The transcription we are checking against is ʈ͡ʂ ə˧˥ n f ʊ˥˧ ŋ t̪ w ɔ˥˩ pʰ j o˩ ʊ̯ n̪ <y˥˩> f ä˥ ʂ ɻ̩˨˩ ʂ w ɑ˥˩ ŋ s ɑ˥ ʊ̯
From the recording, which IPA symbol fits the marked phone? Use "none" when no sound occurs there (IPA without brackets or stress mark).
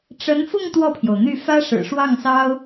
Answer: y˥˩